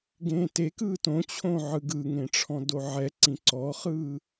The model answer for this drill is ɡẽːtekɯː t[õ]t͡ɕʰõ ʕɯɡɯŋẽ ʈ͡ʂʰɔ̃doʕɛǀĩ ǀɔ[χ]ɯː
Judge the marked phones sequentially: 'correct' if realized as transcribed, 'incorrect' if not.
correct, correct

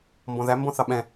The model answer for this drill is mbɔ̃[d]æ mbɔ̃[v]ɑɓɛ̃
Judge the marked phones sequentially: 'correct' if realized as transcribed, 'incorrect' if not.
incorrect: ð, incorrect: θ

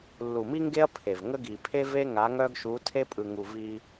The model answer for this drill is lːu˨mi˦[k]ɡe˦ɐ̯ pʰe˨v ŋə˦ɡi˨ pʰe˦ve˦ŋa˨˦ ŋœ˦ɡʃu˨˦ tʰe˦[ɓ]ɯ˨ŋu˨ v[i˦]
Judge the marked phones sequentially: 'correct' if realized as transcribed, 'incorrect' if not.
incorrect: ŋ, incorrect: pʼ, correct

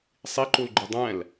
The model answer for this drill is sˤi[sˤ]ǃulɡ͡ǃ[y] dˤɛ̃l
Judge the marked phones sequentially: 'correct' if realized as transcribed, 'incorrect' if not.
incorrect: none, correct

